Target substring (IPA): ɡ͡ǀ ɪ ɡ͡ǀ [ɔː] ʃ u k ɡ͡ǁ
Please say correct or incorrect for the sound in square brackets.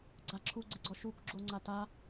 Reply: incorrect